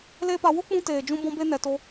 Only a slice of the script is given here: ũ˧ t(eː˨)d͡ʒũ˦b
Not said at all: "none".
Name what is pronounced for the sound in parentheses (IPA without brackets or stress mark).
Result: eː˨